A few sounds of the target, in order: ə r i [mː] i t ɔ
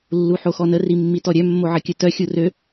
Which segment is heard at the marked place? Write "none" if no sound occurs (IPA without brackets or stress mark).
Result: mː